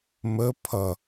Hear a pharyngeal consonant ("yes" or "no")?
no